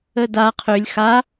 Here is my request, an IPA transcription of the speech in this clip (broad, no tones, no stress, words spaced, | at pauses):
əda qʰølʲ xa